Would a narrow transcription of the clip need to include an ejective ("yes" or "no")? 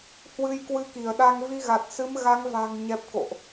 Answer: no